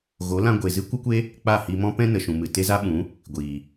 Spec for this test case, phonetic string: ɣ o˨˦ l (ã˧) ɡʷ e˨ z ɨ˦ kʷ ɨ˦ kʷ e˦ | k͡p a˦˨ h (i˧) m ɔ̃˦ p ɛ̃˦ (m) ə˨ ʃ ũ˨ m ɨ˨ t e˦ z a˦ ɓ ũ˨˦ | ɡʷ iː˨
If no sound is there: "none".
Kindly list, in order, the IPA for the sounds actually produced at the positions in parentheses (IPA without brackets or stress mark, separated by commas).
ã˧, i˧, n